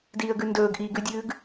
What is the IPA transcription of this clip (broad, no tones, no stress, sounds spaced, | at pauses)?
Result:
d iː ə̯ ɡ ʉ n d ɵː ɡ ʔ iː ɡ ʉ dʲ ʉː ɡ